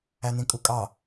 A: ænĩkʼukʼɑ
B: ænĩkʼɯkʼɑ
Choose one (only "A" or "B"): A